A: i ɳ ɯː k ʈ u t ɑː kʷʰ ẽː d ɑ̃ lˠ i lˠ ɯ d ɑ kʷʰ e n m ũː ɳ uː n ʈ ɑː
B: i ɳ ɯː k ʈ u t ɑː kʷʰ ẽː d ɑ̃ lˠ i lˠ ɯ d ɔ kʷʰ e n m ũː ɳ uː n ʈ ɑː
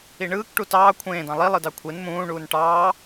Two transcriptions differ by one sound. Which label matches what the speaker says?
A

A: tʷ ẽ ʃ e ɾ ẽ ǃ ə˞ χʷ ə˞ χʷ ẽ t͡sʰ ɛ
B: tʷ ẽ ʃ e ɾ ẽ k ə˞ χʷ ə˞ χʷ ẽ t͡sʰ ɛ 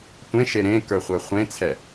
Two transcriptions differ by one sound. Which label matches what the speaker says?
B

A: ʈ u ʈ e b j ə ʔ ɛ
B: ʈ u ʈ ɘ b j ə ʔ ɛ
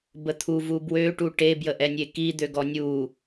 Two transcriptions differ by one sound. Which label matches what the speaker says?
A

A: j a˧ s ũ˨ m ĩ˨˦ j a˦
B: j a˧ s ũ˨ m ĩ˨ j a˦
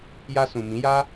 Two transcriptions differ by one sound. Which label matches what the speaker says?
A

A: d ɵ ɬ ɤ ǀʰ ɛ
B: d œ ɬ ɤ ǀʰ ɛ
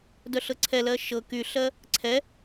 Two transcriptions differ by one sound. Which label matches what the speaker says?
B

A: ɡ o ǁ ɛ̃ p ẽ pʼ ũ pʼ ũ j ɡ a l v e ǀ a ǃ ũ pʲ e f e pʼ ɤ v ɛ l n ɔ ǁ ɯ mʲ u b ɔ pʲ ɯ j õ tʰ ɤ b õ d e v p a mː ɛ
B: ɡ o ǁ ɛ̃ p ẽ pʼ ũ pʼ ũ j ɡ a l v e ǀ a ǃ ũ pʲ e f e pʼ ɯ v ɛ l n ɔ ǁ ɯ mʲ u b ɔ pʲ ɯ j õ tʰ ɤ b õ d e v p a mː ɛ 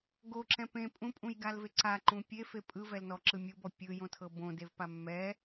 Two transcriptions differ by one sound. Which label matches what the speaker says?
B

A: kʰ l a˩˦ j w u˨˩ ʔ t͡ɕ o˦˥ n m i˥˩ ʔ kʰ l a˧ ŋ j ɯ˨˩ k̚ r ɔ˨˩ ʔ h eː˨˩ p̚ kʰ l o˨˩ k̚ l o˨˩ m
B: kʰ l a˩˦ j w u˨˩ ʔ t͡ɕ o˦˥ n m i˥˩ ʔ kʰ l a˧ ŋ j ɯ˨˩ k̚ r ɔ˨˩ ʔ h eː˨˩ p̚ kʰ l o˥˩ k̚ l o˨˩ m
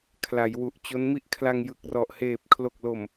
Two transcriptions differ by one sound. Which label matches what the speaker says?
A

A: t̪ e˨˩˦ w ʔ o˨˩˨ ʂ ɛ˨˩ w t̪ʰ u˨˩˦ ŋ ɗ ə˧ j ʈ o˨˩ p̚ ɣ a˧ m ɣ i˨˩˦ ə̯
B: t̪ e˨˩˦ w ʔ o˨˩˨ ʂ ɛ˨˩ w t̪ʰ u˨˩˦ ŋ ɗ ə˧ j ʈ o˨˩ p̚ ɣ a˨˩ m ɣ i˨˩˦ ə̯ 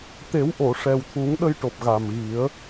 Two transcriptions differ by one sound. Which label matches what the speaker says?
B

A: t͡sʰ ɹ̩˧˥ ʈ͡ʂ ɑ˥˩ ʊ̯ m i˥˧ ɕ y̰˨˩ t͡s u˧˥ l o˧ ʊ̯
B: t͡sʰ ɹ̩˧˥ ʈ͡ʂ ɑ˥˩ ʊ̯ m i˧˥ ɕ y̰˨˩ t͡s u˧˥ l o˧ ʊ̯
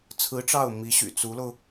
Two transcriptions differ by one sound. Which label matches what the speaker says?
B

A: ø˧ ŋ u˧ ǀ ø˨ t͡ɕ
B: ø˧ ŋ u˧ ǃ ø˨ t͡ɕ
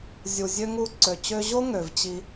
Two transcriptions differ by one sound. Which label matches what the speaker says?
A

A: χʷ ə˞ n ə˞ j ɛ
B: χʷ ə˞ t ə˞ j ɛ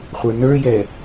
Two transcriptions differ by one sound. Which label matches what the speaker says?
A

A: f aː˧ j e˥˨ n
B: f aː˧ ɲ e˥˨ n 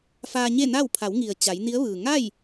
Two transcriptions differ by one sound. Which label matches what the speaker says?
B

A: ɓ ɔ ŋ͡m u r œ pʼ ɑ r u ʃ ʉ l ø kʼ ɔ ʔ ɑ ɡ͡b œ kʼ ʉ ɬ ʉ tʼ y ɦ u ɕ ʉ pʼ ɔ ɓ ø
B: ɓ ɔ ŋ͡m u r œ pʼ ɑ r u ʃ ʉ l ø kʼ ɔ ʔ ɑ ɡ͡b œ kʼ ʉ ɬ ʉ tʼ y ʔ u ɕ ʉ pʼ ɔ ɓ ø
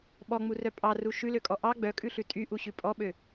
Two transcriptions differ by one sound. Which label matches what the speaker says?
B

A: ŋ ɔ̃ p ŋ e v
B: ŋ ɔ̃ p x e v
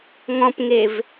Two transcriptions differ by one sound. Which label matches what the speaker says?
A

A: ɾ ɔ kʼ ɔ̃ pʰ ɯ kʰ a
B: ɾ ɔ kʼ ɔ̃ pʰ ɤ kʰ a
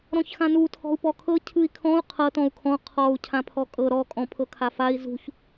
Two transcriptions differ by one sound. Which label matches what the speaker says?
B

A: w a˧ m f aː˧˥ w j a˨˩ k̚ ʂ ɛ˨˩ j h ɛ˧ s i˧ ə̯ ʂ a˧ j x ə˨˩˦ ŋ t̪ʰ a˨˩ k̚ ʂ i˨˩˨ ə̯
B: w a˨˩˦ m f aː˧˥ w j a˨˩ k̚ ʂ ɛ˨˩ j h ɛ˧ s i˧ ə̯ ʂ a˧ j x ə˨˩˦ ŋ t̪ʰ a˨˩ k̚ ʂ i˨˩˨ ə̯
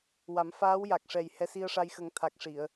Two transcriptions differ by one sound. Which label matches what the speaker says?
B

